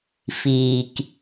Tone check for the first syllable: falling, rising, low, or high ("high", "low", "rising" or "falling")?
low